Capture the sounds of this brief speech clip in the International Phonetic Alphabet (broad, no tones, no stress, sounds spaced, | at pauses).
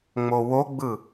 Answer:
ŋ͡m o w o ɡ͡b ɯ